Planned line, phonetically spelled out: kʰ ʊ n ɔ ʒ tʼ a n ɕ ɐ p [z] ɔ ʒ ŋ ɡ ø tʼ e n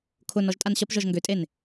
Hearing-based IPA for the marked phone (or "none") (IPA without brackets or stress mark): ʒ